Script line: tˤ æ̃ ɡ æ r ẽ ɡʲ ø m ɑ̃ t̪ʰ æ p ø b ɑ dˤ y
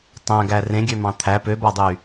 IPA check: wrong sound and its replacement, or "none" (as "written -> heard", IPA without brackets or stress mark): none